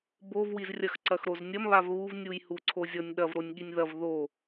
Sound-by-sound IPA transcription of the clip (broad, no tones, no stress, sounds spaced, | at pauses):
b o v w i z rʲ ɐ x ǀ ɐ x ɾ o z nʲ ɐ m β a v β u v nʲ u j h u ǀʰ o zʲ ɔ nʲ ɗ ɐ v ɾ o nʲ ɠ i nʲ ð ɐ v ð o